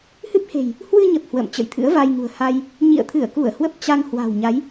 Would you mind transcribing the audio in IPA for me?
h ɨ˦˥ p̚ h e̤˨˩ j | h w ɨ˧ ɲ ə˨˩ p̚ h w ə̰ː˧˨ m t͡ɕ ə̰˧˨ j t̪ʰ ɨ̰˧˥ ə̯ v a˧ j ŋ ṳ˨˩ ə̯ h a˧ j | ɲ ḭ˧˨ ə̯ t̪ʰ ɨ˧˩ ə̯ k u˧˩ ə̯ h w ə˦˥ p̚ t͡ɕ a˧ ŋ h w a̤˨˩ w ɲ a˨˦ j

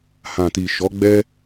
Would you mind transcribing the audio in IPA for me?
h ã˨ t i˨ ʃ ɔ˨˦ ɡ͡b ɛ˦

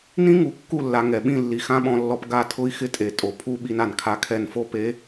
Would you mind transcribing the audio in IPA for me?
n ĩ˦ ŋ u˨ kː u˦˨ lː a˨ ŋ ɛ˨ ɓ ĩ˦˨ lː i˨ x ã˦ ɓ ɔ̃˨ lː ɔ˨ p ɡ a˦˨ tʰ ʊ˦ i̯ x ɪ˦ tʼ e˨ tʼ o˨ pʰ u˦ ɓ i˦ n a˨ n kʰ a˦ kʰ ɛ˦˨ n f o˦ p e˨˦

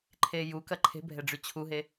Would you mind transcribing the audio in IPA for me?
ǃʰ eː j u k ɐ ǃʰ e̤ bʱ ɛ ɖ͡ʐ y t͡ɕʰ u ɦ e

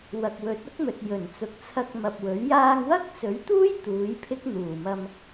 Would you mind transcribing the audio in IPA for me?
w ɐ˨ k̚ w ɵ˨˥ t̚ ʊ˥ k̚ m ɵ˨ t̚ j ɵ˨˩ n t͡s ʊ˨ k̚ t͡sʰ ɐ˧ k̚ m ɐ˨ p̚ w ɵ˨˥ ɥ j aː˧ ŋ w ɐ˥ k̚ t͡s ɵ˨˥ ɥ t̪ uː˥ j t̪ uː˨˥ j pʰ ɪ˥ k̚ n̪ uː˨˩ m ɐ˧ m

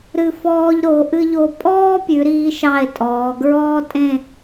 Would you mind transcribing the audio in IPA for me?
ɾ ɨ˧˩ f ɔː˧ ʎ ɾ o˩˧ ʔ ɨ˥ ʎ o˥˧ pʼ ɔː˥ pʲ ʉ˩˧ ɾ iː˧ ʃ ɑ˧˩ e̯ tʼ ɔː˩˧ ɡ ɹ ɔː˥ tʼ ẽ˥˧

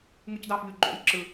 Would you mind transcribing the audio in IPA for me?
ŋ ɯ c d ɑ f ʎ y ɡ͡ǃ o̰ j ǁ ɯ

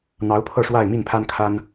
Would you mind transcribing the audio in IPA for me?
n̪ ɑ˧˥ ʊ̯ pʰ ɤ˥˧ ʂ w a˥˧ ɪ̯ m i˥˩ n pʰ a˥ n kʰ a˥ n

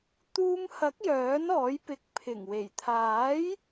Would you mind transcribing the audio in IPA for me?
t̪ uː˧ m h ɐ˨˥ k̚ j œː˨˥ n ɔː˨˥ j p ɪ˧ k̚ pʰ ɪ˨˩ ŋ w e˨˩ j t̪ʰ aː˨˥ j

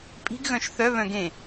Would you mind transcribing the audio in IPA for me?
pʼ i̤ ɡ ɣ œ̃ ʃ θ œ β œ̃ ɡ ẽ

